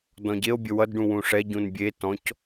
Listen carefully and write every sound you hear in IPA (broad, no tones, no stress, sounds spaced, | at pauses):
d ɔ̃ ɟ e o̯ bʲ ə w ʌ d ɖ ũ w ũ ʂ ɛ ɟ ũ n bʲ e t ɔ̃ c